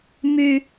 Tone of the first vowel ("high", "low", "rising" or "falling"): high